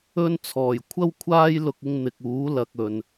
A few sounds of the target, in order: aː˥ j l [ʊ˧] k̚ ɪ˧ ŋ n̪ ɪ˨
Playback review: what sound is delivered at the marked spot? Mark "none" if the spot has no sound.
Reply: ʊ˧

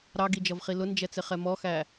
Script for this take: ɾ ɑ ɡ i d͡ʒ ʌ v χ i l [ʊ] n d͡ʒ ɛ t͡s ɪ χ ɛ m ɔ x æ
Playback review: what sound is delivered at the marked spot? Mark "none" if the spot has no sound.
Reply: ʊ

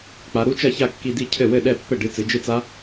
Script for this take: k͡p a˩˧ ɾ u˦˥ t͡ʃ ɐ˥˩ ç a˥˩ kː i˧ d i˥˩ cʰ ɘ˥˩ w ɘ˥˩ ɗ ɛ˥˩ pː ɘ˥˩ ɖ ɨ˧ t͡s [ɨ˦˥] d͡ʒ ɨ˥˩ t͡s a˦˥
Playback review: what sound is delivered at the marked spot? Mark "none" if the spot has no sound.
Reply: ɨ˩˧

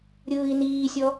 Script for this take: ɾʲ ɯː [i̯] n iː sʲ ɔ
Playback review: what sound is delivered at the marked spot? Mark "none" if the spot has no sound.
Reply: i̯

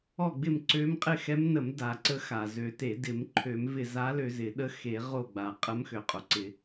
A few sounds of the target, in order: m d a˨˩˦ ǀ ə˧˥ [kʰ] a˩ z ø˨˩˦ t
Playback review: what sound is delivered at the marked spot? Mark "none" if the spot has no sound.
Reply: x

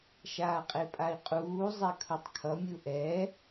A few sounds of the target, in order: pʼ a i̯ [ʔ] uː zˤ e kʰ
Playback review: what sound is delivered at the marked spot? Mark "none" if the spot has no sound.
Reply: qʼ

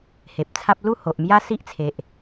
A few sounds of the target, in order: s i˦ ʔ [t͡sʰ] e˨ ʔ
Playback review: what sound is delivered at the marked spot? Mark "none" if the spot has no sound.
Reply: t͡sʰ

